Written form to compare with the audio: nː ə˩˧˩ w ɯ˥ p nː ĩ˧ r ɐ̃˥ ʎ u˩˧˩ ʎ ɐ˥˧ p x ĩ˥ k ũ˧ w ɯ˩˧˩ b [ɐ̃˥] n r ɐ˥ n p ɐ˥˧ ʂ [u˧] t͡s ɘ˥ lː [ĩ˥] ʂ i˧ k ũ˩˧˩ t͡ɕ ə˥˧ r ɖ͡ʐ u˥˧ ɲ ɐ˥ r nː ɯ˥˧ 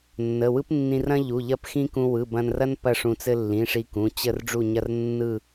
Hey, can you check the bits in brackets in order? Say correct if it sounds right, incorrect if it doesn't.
incorrect, incorrect, incorrect

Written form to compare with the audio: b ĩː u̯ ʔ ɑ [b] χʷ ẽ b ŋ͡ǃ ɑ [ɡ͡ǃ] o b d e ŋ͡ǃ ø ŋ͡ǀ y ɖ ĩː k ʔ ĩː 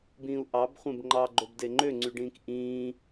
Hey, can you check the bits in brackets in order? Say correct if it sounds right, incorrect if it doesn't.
correct, correct

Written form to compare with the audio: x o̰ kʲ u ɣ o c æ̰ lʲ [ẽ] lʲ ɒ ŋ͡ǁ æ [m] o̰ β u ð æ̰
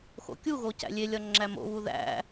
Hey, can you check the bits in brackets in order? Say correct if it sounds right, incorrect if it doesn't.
incorrect, correct

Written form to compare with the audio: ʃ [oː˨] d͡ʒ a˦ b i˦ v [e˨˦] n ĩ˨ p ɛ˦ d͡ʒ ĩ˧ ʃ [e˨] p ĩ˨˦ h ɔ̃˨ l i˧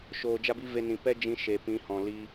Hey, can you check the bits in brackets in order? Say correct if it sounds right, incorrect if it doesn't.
correct, incorrect, correct

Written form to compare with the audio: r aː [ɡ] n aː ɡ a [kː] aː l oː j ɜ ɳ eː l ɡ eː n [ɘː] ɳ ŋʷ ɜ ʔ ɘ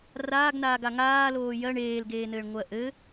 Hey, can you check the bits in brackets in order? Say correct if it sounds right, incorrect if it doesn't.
correct, incorrect, correct

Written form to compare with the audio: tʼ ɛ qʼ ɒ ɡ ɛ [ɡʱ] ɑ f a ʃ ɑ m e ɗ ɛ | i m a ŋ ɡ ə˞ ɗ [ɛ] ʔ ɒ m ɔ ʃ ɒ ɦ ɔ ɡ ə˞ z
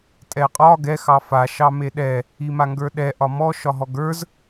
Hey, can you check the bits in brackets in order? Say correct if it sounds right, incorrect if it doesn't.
incorrect, correct

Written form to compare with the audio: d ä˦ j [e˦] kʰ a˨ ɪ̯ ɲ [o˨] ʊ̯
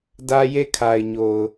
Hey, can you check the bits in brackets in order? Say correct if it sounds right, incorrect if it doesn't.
incorrect, correct

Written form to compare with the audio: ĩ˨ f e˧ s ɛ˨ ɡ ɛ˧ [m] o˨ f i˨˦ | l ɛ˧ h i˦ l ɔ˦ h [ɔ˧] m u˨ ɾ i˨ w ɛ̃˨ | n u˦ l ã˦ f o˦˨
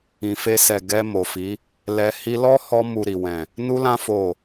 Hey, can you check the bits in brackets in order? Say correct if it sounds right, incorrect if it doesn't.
correct, correct

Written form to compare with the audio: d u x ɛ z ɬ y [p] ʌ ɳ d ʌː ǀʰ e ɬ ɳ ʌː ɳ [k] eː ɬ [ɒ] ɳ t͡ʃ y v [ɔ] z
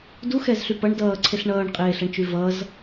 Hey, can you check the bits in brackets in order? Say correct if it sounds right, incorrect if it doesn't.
correct, incorrect, incorrect, incorrect

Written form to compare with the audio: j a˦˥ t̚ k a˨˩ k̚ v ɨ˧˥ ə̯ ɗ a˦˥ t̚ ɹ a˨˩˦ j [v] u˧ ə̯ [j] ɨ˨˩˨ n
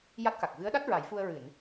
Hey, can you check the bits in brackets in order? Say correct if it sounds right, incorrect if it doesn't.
incorrect, incorrect

